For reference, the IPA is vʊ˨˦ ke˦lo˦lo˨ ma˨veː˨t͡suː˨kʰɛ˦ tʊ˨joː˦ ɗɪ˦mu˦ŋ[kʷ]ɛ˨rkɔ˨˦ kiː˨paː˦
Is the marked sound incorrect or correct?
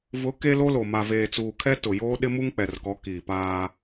incorrect